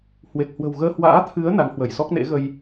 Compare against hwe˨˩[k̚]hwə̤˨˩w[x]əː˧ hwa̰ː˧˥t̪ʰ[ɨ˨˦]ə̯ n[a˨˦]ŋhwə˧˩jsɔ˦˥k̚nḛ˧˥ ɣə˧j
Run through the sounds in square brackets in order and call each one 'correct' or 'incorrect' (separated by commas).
correct, incorrect, correct, correct